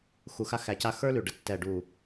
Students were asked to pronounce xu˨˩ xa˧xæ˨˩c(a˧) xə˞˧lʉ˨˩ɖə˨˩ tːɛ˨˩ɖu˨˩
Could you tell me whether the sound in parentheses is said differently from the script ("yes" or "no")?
no